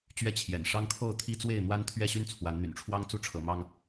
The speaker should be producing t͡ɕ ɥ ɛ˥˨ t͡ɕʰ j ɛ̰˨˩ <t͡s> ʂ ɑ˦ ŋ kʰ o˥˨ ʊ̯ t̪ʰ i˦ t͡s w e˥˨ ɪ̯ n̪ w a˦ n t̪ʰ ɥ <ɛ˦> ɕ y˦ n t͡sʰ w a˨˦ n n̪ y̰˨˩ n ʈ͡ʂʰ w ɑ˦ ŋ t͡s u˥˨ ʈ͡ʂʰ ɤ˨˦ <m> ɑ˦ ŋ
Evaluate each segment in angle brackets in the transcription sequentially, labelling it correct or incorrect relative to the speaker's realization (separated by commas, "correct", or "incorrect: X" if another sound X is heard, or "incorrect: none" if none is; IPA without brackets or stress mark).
incorrect: n, incorrect: ɛ˥˨, correct